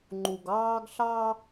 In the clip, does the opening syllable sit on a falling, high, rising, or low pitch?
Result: low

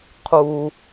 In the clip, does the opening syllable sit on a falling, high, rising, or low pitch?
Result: low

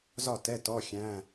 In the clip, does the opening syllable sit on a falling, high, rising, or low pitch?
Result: falling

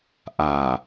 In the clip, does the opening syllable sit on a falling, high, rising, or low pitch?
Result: low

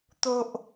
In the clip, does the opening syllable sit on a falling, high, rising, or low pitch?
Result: low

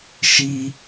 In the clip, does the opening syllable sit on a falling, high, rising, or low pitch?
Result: high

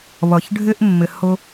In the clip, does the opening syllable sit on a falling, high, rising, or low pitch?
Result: low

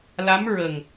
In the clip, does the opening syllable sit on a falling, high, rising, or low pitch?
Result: rising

